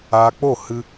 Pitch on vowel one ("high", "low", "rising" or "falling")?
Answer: low